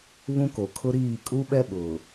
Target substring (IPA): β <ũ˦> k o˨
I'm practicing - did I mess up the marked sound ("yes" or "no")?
no